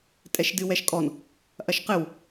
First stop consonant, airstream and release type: ejective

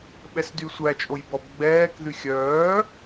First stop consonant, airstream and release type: implosive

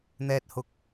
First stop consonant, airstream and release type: plain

